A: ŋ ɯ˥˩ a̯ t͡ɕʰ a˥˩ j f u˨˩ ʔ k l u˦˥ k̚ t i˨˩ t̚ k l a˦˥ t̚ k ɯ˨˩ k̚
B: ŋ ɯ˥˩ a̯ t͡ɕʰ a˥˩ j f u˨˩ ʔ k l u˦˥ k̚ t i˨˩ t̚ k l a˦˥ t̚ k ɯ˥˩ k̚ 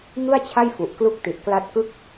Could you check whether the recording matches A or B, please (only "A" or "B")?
B